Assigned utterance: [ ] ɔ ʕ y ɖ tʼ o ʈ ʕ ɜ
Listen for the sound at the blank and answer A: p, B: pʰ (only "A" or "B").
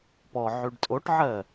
A